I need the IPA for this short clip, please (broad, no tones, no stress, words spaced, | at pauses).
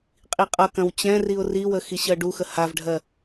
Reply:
qʼiqʼʌkɐ̃w t͡ɕɛ̃riʊ̯ riwə xiɕɜɖuxə havɖʱɜ